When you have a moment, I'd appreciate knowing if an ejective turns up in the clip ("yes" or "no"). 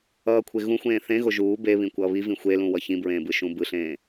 no